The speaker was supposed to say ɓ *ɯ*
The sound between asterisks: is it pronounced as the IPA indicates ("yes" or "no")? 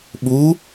no